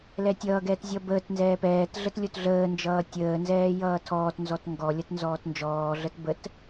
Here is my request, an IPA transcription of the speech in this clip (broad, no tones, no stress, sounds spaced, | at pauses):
l ɛ tʲ ʌː ɡ ɛː t zʲ ʌ b əː t n z ɛː p ɛː t ɮ ə t lʲ o t ɮ əː n d͡ʒ ʌː tʲ əː n z ɛː j ʌː tʰ ɔː t n z ɔ t ŋ ɡ ɔ lʲ ʌ t n z ɔː t n d͡ʒ ɔː ɮ ə t b ə t